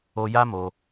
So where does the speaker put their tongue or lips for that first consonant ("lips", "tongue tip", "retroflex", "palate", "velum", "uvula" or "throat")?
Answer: palate